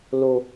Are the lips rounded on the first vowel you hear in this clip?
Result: yes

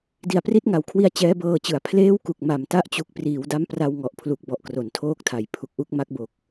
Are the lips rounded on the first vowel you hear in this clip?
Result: no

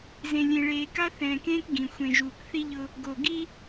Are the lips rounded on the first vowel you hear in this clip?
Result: no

